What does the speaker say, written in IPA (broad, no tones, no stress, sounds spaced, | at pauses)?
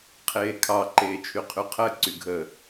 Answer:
qʰ eː kʰ ɑ ǃ eː t͡ʃʰ y qʰ y qʰ ɜ ǀ y ɡʱ ə